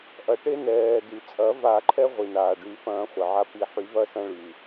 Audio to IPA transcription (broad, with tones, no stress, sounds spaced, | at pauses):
ʔ ɐ˩ ʈ e˧ n ɛː˩ d y˩ t͡sʼ ɐ˨˩˦ v a˨˩˦ ǃʰ ɛ˧ ʁʷ i˩ n aː˩ ɖ y˨˩˦ f ɐ̃ː˨˩˦ χʷ ə˩ ʕ a˧ p i˨˩˦ ħ y˨˩˦ v ɐ˧ s ɐ̃˧ ɭ y˩